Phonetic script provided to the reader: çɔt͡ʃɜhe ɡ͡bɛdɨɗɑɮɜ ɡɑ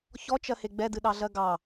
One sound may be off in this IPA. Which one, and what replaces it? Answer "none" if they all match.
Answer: none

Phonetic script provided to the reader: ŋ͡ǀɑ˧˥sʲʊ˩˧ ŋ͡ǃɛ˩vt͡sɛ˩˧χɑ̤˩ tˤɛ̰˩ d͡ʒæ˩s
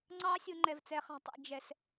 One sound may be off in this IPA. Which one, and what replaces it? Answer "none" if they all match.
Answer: æ˩ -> ɛ˩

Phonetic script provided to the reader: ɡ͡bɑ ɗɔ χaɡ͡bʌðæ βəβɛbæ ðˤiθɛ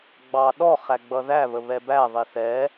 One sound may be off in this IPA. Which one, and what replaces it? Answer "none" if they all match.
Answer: a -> æ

